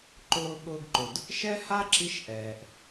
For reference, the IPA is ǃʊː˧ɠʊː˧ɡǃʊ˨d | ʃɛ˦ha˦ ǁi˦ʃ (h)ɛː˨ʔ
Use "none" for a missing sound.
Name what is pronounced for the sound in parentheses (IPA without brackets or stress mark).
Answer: ʔ